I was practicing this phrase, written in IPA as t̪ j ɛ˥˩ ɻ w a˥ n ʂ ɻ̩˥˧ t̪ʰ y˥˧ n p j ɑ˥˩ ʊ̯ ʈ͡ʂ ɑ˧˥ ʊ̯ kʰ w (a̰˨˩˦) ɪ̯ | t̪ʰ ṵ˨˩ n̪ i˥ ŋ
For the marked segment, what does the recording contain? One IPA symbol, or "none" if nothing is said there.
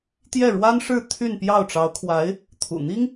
a˧˥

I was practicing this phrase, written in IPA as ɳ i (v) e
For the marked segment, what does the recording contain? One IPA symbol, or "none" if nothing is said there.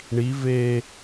v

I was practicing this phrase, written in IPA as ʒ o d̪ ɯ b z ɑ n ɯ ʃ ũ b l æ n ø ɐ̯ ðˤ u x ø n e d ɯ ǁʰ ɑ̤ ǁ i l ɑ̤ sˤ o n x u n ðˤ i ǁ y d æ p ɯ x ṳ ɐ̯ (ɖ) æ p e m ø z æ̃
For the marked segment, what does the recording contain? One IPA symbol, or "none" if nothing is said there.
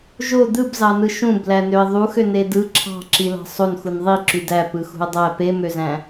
dˤ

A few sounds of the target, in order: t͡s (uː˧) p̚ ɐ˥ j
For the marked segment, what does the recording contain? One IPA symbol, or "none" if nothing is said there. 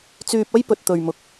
yː˧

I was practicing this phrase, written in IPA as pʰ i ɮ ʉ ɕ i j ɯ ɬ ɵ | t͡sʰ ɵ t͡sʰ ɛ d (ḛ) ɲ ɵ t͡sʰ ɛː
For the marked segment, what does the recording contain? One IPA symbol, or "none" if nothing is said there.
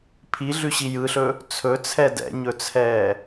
ɛ̰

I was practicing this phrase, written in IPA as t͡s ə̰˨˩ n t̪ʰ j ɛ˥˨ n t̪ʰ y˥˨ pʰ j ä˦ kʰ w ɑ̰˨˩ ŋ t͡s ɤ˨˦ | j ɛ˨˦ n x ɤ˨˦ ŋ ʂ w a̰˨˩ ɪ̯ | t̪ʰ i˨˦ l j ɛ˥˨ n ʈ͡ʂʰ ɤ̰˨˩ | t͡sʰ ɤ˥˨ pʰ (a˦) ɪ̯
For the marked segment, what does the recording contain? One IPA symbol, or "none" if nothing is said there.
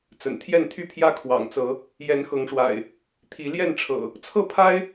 a˦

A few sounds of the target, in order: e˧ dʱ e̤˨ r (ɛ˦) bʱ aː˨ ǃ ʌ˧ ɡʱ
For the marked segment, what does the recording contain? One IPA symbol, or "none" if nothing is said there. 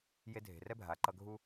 ɛ˦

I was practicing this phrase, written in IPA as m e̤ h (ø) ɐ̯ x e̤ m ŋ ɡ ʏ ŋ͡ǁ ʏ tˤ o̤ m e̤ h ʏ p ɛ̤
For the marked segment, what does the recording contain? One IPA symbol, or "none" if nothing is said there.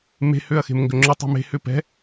ø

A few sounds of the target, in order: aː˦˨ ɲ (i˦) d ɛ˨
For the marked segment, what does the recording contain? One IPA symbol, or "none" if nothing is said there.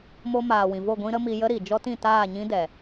ĩ˦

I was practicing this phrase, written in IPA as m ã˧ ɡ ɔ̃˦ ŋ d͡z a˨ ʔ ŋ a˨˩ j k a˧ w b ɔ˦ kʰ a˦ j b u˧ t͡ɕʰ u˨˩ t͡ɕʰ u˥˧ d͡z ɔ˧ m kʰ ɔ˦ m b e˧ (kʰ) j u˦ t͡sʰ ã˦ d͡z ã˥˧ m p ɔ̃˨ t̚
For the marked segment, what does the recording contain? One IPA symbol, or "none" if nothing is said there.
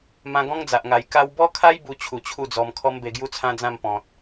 ɡ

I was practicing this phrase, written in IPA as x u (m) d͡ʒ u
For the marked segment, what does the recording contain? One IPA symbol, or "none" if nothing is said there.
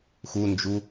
n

